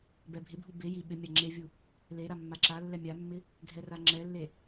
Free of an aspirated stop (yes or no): yes